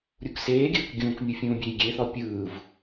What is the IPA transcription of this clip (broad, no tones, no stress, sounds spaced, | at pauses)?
ɾʲ u k s eː ɡʲ ɯː k ɡʲ ũː k mʲ u fʲ ũː bʲ eː j ɡʲ e θ ɔ pʲ ɯː v